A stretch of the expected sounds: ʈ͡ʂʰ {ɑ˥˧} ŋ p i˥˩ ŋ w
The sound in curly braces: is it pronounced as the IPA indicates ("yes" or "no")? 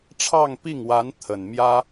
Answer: yes